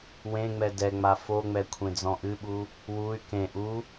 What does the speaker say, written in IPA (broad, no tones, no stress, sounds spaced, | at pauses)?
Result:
w ẽ ŋ͡m ɛ d ɛ ŋ͡m a f o ŋ͡m ɛ kʷʰ ẽ d͡z ɔ̃ ʔ ɨ ɓ u | w u y̯ k ẽ ʔ u